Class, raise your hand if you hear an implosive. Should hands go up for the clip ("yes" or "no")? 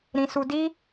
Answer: no